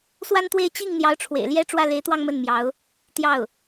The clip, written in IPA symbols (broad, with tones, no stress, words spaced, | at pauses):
swa˥nt̪we˥˧ɪ̯ t͡ɕi˥˩ŋ n̪jɑ˧˥ʊ̯ʈ͡ʂʰwḛ˨˩ɪ̯ ljɛ˥˧ ʈ͡ʂwä˥˩le˧˥ɪ̯t̪wɑ˥˧ŋ mə˥˩nmjɑ˧˥ʊ̯ | t̪jɑ˥˩ʊ̯